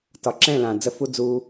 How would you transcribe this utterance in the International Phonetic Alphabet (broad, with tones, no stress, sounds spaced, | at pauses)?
t ɒ˨ ǁ ɛ̃˦˨ l ã˨ d͡z ə˦ f u˦ d͡z u˧